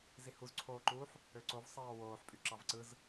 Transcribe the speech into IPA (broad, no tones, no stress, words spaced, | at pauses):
zihuzǀʰoːǃuːħ | øǀovsˤɑː woːħpʼy ǁɑvǀɯz